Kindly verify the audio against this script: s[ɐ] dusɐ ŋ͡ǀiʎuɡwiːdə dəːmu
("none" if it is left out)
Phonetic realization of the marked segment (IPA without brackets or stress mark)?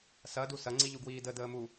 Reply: ɐ